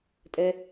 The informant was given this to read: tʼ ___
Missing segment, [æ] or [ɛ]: ɛ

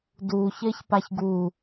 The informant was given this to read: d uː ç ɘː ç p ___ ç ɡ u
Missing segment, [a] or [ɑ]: a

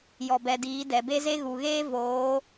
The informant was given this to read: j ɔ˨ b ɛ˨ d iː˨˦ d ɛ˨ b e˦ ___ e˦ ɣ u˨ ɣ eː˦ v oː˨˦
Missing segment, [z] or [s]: z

